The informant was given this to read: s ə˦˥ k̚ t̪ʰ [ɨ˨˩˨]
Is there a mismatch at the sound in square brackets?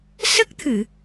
no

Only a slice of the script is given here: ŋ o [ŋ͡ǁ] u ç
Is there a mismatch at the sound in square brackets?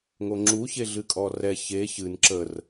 no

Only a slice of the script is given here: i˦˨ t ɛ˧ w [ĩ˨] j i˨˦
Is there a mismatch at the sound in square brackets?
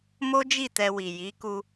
yes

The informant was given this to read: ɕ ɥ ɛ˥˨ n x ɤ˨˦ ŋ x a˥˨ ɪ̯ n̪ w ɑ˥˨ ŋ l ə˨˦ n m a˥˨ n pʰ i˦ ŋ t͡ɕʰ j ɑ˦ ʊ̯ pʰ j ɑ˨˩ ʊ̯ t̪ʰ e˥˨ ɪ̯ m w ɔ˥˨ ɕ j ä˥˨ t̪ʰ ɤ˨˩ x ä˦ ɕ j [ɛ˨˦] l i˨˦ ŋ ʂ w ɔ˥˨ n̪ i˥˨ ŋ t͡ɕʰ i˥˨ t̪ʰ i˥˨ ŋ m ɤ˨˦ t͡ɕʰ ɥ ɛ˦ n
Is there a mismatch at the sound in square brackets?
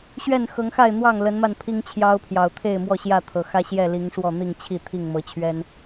yes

